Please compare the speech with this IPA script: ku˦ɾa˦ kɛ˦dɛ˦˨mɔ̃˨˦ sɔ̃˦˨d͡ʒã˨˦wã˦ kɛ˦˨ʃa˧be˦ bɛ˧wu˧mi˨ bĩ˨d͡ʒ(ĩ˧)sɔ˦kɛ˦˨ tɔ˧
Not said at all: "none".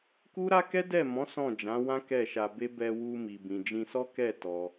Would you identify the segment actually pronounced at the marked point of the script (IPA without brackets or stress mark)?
ĩ˧